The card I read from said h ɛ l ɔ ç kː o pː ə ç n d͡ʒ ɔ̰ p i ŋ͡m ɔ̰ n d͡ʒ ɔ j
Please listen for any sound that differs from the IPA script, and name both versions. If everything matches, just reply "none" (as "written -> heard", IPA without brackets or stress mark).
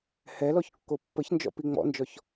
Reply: j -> ç